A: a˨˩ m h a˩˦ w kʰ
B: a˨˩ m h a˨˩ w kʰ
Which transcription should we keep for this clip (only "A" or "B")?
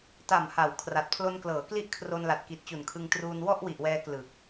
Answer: A